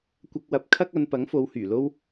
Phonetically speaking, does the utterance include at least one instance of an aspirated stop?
yes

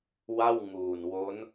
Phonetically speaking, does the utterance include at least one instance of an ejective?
no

